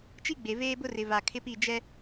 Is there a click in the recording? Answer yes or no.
no